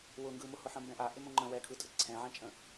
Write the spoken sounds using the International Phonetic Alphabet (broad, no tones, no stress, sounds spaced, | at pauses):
w ʊ ŋ ɡ ɯ m ʊ h ʊ ħ ə̃ m b ɛ̃ ʔ a ʔ ɪ m õ ŋ͡ǃ ə̃ w ɛ kʰ ɯ tʼ ə ǀʰ ɛ̃ ʕ ɛ̃ t͡ʃʼ ə̃